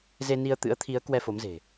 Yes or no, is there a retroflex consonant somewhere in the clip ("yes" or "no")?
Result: no